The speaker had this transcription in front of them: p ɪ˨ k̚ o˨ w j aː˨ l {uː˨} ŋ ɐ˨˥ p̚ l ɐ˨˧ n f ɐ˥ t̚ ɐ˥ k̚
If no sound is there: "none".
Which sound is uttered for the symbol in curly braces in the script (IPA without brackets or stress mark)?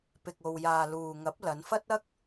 uː˨